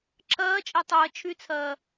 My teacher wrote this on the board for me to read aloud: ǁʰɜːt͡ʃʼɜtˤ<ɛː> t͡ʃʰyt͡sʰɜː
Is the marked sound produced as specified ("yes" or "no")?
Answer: no